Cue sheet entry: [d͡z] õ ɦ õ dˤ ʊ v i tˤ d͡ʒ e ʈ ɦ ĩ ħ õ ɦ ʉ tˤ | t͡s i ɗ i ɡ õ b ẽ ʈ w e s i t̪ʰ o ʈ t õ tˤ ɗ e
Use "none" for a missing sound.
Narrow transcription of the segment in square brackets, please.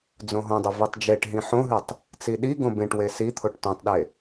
d͡z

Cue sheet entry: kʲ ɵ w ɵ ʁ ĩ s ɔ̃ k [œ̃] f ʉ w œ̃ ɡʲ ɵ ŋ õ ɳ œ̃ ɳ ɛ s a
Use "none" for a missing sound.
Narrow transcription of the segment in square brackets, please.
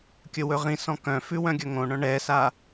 œ̃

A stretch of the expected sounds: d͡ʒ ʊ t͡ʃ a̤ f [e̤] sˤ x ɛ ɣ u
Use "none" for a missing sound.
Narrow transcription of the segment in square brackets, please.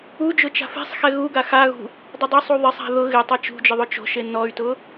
e̤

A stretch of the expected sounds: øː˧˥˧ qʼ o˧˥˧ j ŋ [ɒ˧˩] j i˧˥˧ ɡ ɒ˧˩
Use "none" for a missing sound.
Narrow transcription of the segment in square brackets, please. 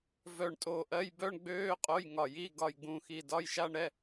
ɒ˧˩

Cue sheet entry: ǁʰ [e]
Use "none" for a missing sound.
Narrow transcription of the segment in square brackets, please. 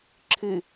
ɨ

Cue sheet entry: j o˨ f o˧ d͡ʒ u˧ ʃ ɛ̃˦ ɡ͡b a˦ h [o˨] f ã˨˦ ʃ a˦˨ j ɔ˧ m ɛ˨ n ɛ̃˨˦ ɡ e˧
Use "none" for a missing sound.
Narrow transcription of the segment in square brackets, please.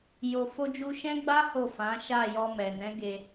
o˦˨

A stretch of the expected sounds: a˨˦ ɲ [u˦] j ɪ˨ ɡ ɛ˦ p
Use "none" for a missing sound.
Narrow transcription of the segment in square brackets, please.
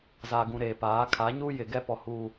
u˦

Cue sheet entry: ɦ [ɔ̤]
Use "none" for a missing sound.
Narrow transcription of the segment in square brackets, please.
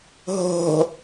o̤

